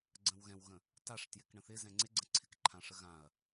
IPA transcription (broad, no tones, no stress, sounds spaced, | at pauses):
ɡ͡ǀ ə̃ w ɣ ɛ̃ w ɣ ə̃ | t a ʂ t j ɪ k ɳ ə̃ θ ɪ z ɛ̃ ŋ͡ǀ ɪ ɡ͡ǀ ə̃ ǀʰ ɪ k ǃʰ ã ʂ ə ɣ ã ɐ̯